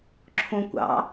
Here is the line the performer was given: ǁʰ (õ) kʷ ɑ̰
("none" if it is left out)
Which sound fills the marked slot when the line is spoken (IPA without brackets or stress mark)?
õ